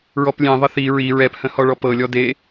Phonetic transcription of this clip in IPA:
ɹ ɔ p lʲ ẽ ðˤ ə θ i ɹ i ɹ ɛ p h ə̃ h ɔ ɭ ɔ p ɤ lʲ ɔ d e

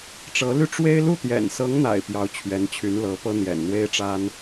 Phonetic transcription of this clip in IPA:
ʈ͡ʂ ɤ˧˥ l y˥˩ ʈ͡ʂ w e˥ ɪ̯ l u˥˩ t̪ j ɛ̰˨˩ n s ɤ˧˥ ŋ n̪ a̰˨˩ ɪ̯ p j ɑ˧˥ ʊ̯ t͡ɕʰ ɥ ɛ˧˥ n t͡ɕʰ y˧˥ n l ɤ˧˥ p ɤ˥ n̪ j ɛ̰˨˩ n n̪ w e˥ ɪ̯ ʈ͡ʂ a˥ n

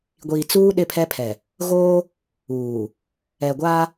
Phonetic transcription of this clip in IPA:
ɡʷ iː˨ t͡s uː˦ ɗ ɪ˦ pʰ ɛ˦ pʰ ɛ˨ | ɣ oː˦ | uː˨ | ɛ˨ ɡʷ a˦

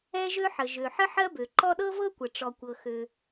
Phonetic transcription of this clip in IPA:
ɛ˥ ʒ ø˥ ħ ə˩ ʒ ø˩ ħ ə˥ ħ ɜ˥ b ø˩ ǃ ɔ˥ ɗ ɤ˥ v ɤ˥ kʷ ə˩ ʈ͡ʂ ɔ˩ kʷ ɤ˩ x ø˩

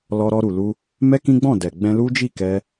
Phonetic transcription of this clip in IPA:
l ɔ˧ ɾ ɔ˧ ɾ u˨ l u˧ | m ɛ˦ k ĩ˦ ɡ͡b ɔ̃˦˨ d ɛ˨ ɡ͡b ɛ̃˧ l u˦ d͡ʒ i˦˨ k ɛ˧

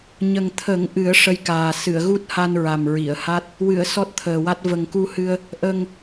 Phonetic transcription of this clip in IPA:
ɲ ə˨˩ ŋ t̪ʰ ə˨˩˦ ŋ ʔ ɨ˨˩˦ ə̯ ʂ ə˧ j k aː˨˩ s ɨ˨˩˨ ə̯ ɣ u˦˥ t̚ h a˧ n ɹ a˨˩ m ɹ i˨˩˨ ə̯ h a˦˥ t̚ | w ɨ˨˩˨ ə̯ s ɔ˦˥ t̚ t̪ʰ əː˨˩ w a˦˥ t̚ v ə˨˩ ŋ k u˧ h ɨ˧ ə̯ | ʔ ə˨˩ ŋ

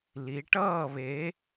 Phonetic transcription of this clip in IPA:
l i˩˧ ʈ ʌː˥˨ β e˨˥

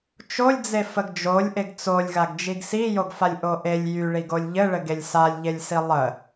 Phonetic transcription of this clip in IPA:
t͡ʃ o lʲ d͡z e f ə ɡ d͡ʒ o lʲ ʔ e ɡ t͡s o lʲ ɣ a ɡ d͡ʒ i ɡ s i j o ɡ f a lʲ ʔ o ʔ e lʲ j y ɭ i ɡ o lʲ ʎ ɘ ɭ ɘ ɡ e lʲ s a lʲ ʎ e lʲ s i lˠ ə

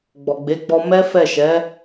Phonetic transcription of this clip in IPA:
ɡ͡b ɔ˨ ɡ͡b e˨˦ ɡ͡b ɔ˧ m ɛ˦ f ɛ˦˨ ʃ ɛ˨˦

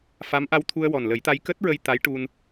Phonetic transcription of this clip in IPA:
f a˧˥ m ʔ a˧ w t̪ʰ u˧ ə̯ w ɔ˨˩ n l ə˨˩˦ j t̪ a˧ j k əː˦˥ t̚ ɹ ə˧ j t̪ a˧˥ j ʈ u˧ n

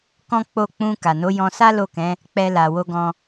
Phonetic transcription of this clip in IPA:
k ɔ̃˦ k͡p o˦˨ k͡p ũ˧ k a˨ n o˨˦ j ɔ̃˧ s a˦ l o˦˨ k ɛ̃˨˦ | k͡p ɛ˧ l a˨ w o˧ ɡ ɔ̃˧

